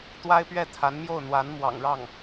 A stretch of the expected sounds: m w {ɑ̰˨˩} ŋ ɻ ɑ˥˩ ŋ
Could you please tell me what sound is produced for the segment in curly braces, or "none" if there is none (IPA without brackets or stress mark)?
ɑ̰˨˩